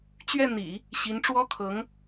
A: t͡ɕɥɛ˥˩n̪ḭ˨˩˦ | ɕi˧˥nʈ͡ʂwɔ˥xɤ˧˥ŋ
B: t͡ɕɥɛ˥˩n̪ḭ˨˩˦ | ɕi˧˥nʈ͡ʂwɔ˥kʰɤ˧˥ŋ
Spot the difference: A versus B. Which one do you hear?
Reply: B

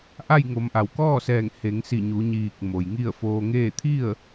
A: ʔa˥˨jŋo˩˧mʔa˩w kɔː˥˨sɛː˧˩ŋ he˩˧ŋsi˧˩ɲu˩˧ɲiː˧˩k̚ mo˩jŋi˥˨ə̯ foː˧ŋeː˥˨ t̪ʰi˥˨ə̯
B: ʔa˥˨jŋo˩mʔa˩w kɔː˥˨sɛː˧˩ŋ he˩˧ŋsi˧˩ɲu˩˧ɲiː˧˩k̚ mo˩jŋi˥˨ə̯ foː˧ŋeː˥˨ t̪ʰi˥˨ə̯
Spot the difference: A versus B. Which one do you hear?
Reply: A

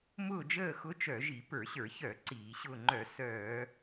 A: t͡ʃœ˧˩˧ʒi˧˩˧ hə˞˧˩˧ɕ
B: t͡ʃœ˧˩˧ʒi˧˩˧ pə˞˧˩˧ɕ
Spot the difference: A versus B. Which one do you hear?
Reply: B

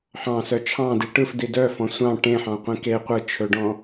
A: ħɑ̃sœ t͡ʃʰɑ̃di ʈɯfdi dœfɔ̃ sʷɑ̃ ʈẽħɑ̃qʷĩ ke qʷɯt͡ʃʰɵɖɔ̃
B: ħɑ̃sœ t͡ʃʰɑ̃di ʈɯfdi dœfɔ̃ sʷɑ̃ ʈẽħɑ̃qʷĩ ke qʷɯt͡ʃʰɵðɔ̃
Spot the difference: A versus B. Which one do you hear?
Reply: A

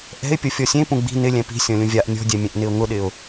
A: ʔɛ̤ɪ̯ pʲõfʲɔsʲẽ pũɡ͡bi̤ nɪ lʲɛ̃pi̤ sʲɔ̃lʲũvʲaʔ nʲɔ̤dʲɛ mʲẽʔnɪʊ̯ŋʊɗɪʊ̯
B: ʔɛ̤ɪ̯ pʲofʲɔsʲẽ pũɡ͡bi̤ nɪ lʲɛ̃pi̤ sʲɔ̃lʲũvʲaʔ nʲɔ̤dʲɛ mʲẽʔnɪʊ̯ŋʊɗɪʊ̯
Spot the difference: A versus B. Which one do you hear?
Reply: B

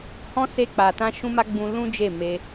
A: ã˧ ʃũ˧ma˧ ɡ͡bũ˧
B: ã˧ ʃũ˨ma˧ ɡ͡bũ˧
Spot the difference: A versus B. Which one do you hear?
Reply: A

